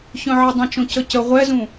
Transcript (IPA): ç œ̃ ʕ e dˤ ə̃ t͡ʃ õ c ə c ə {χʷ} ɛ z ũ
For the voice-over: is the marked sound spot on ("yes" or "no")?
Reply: no